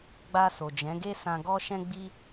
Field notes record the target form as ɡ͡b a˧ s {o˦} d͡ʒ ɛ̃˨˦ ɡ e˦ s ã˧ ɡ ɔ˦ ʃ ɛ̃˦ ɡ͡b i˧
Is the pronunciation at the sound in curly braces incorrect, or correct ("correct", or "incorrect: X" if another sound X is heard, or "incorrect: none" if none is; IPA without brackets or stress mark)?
incorrect: o˨